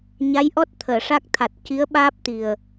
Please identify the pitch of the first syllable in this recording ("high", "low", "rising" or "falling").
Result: rising